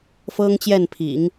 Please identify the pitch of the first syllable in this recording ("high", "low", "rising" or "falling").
high